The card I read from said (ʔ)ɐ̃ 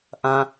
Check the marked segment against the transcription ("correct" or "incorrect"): correct